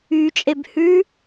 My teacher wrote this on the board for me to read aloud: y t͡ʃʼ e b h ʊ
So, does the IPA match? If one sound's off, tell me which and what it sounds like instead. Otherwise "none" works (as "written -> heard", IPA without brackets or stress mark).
ʊ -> ʉ